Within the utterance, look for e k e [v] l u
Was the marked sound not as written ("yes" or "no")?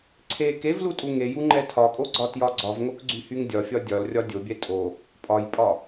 no